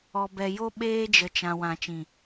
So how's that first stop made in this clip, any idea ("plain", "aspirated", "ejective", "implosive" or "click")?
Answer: plain